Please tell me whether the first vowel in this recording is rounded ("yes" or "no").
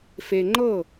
no